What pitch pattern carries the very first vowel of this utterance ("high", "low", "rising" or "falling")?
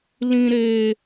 low